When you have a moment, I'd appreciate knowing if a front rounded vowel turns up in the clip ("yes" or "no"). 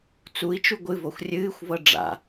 no